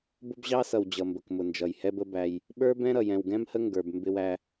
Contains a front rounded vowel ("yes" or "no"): no